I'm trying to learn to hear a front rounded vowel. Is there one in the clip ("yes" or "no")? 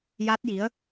no